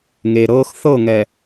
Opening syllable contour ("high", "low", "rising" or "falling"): low